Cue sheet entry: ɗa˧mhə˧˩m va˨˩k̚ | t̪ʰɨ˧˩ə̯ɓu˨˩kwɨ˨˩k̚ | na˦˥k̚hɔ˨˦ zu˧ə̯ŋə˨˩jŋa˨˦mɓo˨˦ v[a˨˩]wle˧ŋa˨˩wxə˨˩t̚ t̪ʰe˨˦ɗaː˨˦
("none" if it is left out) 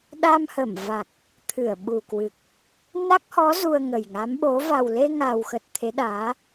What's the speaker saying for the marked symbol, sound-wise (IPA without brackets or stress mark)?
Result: a˨˩